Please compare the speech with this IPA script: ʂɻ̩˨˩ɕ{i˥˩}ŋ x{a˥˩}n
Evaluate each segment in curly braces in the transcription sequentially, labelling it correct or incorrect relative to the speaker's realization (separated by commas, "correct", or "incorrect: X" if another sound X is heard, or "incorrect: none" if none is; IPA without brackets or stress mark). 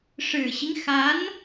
incorrect: i˦, incorrect: a˧˥